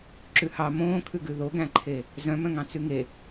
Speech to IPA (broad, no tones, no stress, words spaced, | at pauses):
ǁʉhɑ mõːkʰʉɡʉ ðoɡæ̃ǃʰe | zœ̃mœ̃ŋɑ̃ t͡sʉŋe